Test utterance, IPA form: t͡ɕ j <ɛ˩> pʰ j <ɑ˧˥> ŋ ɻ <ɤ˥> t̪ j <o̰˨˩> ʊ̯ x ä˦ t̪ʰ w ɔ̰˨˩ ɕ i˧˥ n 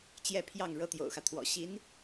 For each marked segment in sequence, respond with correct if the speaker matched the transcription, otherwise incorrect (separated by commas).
incorrect, incorrect, correct, correct